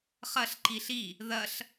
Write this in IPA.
χ ɐ ɬ ǃ i ɬ i | ð ɐ ɬ

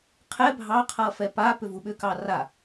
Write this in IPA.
qʰ ɛ bʱ ɑ qʰ ʌ f ɛ p a p ʏ v u ɓ ʏ k ɑ r a

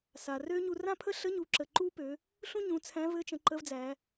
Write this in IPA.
s a˩ r ø˥ ɲ u˧ r ã˥ pʰ ə˥ ɬ ə˧˥ ɲ u˩˧ ǁ ə˩ ǃ u˥ p ø˩˧ | ɬ ũ˥ ɲ ũ˩˧ t͡sʰ æ̃˧˥ v ɘ˧˥ t͡ʃ ə̃˩˧ ǃ ə˧˥ v d͡z æ˩˧

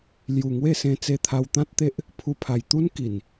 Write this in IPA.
l j u˨˩ ŋ w e˥˧ s ẽ˧ t͡s e˧ t̪ʰ a˧ w t̪ ã˦ t̚ t̪ e˦ ʔ | pʰ u˧ pʰ a˨˩ j t̪ u˦ n k i˨˩ n

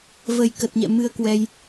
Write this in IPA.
v ə˨˩ j k ə˨˩ t̚ ɲ ɛ̰˧˨ m ɨ˧ ə̯ k w ɛ˧ j

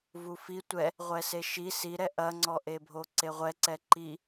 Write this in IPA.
v u f i tʷ ɛ | ʁʷ ɛ s e ʃ i s i ɾ ɛ ʔ ɐ ŋ͡ǀ ɔ ʔ e bʱ o ǀ e ʁʷ ɛ ǀ ɛ ǃ i

